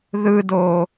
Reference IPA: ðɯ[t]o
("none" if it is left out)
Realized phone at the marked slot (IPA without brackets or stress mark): d